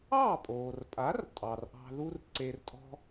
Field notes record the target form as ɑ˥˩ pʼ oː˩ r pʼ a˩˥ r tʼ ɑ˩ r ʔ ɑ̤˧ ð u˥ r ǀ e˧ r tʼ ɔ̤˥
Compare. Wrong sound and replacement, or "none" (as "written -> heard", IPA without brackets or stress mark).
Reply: none